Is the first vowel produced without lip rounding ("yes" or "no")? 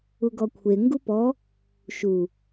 no